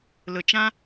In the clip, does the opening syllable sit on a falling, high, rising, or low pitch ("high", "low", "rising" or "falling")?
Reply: low